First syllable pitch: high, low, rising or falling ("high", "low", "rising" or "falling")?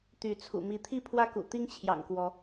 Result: rising